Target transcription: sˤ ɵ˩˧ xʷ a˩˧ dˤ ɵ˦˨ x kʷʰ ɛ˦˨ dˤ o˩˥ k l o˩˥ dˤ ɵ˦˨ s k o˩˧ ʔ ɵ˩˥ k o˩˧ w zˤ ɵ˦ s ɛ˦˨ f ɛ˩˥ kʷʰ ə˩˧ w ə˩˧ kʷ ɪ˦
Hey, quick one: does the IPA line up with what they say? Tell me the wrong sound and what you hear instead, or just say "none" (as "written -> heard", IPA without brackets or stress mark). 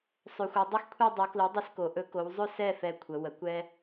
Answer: ɪ˦ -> ɛ˦